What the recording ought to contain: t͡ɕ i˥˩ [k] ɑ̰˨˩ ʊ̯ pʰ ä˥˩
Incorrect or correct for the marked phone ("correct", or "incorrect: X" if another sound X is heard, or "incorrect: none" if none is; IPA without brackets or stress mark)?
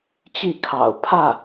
incorrect: kʰ